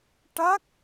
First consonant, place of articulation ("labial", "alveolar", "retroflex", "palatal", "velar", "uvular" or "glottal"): retroflex